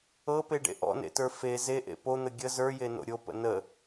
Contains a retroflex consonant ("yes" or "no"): yes